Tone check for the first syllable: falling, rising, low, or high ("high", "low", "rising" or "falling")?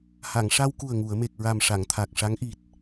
low